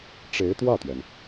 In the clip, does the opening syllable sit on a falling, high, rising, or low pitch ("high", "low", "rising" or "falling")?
rising